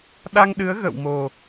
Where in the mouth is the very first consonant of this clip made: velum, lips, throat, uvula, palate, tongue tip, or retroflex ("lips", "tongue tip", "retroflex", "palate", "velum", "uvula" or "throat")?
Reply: tongue tip